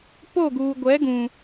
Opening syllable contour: falling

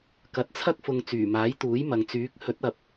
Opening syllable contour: rising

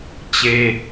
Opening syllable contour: high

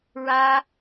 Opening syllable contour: high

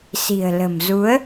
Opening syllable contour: low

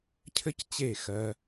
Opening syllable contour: high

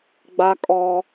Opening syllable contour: high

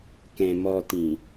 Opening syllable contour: low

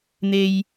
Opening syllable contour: high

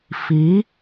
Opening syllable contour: rising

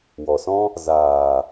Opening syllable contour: low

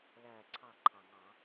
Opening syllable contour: falling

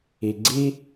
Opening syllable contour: low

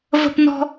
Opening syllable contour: high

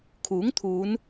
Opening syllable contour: rising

